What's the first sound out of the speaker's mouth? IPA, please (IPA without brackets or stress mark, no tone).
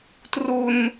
t